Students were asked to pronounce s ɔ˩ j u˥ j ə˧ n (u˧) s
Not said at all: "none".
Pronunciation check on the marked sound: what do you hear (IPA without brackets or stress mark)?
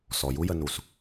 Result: u˩